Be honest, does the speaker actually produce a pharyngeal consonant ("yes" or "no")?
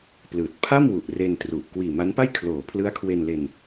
no